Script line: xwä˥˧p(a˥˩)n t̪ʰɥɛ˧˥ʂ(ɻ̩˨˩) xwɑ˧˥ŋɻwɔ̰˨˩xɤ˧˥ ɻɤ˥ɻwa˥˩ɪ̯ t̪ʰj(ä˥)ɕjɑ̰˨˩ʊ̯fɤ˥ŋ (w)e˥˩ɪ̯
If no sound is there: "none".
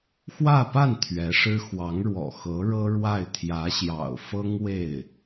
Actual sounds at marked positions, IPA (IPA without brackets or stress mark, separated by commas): a˥˩, ɻ̩˥, ä˧˥, w